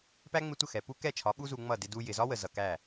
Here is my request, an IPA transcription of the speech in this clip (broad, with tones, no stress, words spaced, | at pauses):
pæ˦ŋ͡mɪ˧tʷə˦˨ xɛ˨ pu˦ kɛ˦˨t͡ʃʰɒ˨˦ ɓu˦zu˧ŋ͡mʌ˦˨ dɪ˧du˧ jɪ˨zɒ˦wə˨ zʌ˨kæ˦˨